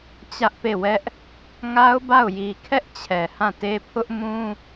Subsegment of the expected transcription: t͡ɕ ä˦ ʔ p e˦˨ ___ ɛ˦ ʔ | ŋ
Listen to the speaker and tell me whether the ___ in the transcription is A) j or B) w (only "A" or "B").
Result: B